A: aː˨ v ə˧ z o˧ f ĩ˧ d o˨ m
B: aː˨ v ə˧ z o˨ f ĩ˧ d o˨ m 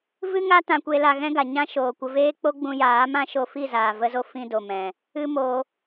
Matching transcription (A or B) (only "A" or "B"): A